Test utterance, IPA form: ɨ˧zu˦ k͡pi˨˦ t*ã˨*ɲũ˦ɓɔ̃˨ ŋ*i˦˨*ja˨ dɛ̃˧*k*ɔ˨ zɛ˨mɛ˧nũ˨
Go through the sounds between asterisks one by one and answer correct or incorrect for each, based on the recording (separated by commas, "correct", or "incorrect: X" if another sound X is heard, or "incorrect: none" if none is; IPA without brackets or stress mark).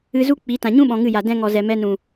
correct, incorrect: ɨ˦˨, incorrect: ŋ